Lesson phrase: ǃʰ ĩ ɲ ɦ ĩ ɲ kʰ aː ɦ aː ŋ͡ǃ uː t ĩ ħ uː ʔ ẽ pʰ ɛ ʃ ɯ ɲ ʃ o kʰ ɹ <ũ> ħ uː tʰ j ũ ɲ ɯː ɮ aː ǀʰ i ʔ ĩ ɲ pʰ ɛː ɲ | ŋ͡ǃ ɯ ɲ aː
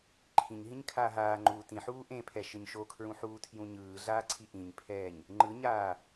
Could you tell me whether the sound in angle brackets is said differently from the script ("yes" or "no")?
no